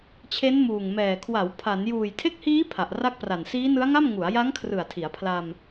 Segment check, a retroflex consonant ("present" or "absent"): absent